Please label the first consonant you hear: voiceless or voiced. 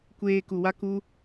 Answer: voiceless